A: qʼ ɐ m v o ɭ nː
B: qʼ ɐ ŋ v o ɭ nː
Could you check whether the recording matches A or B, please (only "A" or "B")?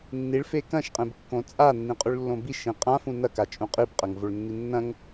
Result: B